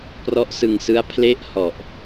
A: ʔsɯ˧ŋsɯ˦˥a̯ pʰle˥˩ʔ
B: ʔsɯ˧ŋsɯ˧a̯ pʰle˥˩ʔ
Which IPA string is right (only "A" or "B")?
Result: A